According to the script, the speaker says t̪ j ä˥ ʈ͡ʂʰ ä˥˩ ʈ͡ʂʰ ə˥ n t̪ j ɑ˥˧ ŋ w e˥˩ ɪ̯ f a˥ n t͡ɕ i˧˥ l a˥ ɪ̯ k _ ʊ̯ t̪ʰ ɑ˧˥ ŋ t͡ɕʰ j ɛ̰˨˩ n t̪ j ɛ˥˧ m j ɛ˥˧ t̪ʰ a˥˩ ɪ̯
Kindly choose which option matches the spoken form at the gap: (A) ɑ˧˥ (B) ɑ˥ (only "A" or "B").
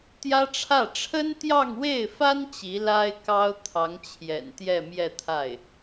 B